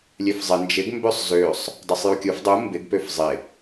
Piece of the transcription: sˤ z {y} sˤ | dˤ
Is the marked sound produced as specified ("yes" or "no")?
no